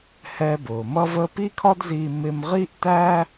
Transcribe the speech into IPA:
h ɛː˧ b ʊː˩ m ʌ˥ v əː˥ p i˥ kʰ ɒ˥ d z iː˧ m ɪ˧ m ʁ i˥ ʔ t æ˥

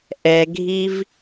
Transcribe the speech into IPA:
ʔ ɛ ɡʱ i v

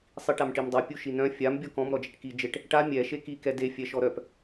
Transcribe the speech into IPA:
sˤ i ʈ a m ʈ i m dˤ a pʲ u ʃ i n œ̃ fʲ a m bʲ ɔ k ɔ̃ m ɾ ɔ d͡ʒ ɛ ʈ k i d͡ʒ e ʈ | ʈ a mʲ ɛ ʃ e k i k ɛ d e fʲ ɛ ʃ ɔ ɾ œ p

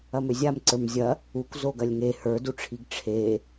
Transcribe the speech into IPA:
ɐ m ø zʲ a m ǀ ə˞ m zʲ ɐ | u kʷ z o ɡ ɐ lʲ ŋ e h ə˞ d u ʈ͡ʂʰ i ɡ ʈ͡ʂʰ e

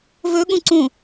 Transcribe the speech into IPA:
v ɵ ɠ ũ ǀ ũ

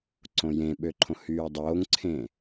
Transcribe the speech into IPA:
ǀ õ j ẽ ɓ ø ǃʰ õ h yː dˤ oː ŋ ǀʰ ẽ

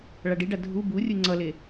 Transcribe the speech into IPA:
ɭ a ɖ i ɖ a dʱ u b u rʲ ɯ ŋ͡ǀ ʌ l e

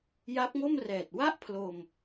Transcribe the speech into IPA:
j a˦˥ p̚ ŋ o˥˩ m r ɛː˨˩ t̚ w a˥˩ ʔ pʰ l o˧ m

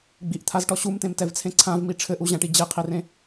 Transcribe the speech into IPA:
ɡ͡b i ʔ t̪ʰ a z ʈ ɔ ɕ u m t ẽ m t ɛ v t͡sʰ ẽ ǀʰ ã v m i ʈ͡ʂʰ ɘ ʔ u ʑ ã ʈ i d͡ʑ e qʰ i r ẽ

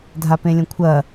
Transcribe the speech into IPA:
dʱ a p ẽ lʲ ɐ̃ kʷʰ ɐ

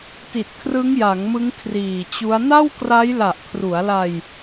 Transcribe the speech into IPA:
t i˨˩ t̚ kʰ r ɯ˦˥ ŋ j a˩˦ ŋ m ɯ˦˥ ŋ kʰ r iː˨˩ t͡ɕ u˦˥ a̯ n a˥˩ w k r a˦˥ j l a˨˩ ʔ kʰ r u˩˦ a̯ l a˧ j

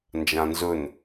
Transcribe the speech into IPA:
n d͡ʒ ã n z ɵ n

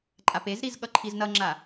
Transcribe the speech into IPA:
ǃʼ a p e z ɾ i z ɠ ʌ ǃʰ i z n ʌ ŋ͡ǁ a

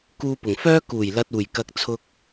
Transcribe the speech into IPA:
k uː˧ p ʊ˨˩ ŋ f œː˥ k uː˨˩ j l ɐ˨ t̚ uː˨˩ j k ɐ˨ k̚ t͡sʰ ʊ˧ k̚

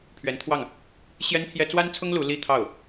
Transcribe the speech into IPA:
pʰ ɥ ɛ˧˥ n t̪ʰ w ɑ˥˩ ŋ | ɕ j ɛ˥ n pʰ j ɛ˥ t͡s w a˥ n t͡sʰ ʊ˥ ŋ l u˧˥ l i˥ t̪ʰ ɑ˥˩ ʊ̯

